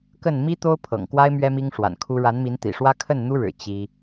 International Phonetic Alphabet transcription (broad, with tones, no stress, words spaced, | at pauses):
kə˥˩n mi˥ t̪o˥ʊ̯ pʰɤ̰˨˩ŋkwa˥ɪ̯ mɥɛ˥mi˥ŋʂwa̰˨˩nkʰu˥ ɻa˧˥nmi˧˥nt̪ḭ˨˩ʂwä˥ kʰə˥˩nn̪u˥ɻɻ̩˨˩ t͡ɕi˥